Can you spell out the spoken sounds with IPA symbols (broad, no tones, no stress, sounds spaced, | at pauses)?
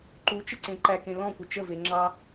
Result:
ǃ u t͡ʃ ɪ ǀ ẽ ǃ æ k ẽ l ɔ̃ kʷ ɪ t͡ʃ ə v e ŋ͡ǁ ɑ